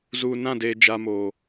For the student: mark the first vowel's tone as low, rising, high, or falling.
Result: low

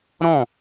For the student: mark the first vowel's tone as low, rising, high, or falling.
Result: falling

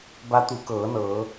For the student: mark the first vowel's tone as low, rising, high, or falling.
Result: rising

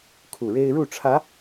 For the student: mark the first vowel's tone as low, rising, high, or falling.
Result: low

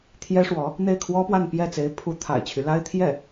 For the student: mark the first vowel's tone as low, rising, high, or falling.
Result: high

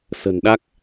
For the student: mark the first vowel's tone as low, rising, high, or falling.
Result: low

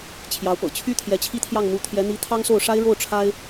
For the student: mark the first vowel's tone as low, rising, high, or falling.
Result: rising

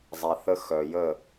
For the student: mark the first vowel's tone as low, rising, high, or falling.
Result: low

